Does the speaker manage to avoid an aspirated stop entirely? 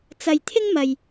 no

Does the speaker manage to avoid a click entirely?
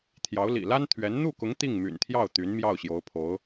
yes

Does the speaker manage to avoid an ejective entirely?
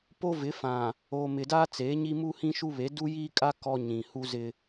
no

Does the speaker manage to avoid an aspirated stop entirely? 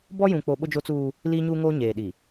yes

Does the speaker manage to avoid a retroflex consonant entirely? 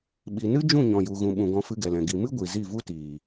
yes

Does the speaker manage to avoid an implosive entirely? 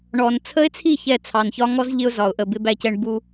yes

